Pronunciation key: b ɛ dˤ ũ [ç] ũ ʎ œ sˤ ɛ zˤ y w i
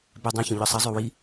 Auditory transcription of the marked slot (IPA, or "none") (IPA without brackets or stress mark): ç